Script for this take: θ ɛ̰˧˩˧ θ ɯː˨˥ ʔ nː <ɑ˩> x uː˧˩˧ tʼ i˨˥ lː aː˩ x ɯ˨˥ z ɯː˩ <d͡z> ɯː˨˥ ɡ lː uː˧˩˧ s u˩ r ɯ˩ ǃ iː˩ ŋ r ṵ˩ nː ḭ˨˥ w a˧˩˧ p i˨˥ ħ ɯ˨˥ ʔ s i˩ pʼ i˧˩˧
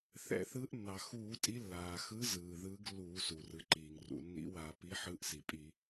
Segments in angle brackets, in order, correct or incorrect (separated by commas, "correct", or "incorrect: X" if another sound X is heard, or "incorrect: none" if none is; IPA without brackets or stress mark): correct, incorrect: ð